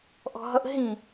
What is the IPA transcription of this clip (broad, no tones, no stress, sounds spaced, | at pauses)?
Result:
ʔ ɔ̤ ɦ ʌ ʔ ɦ ĩ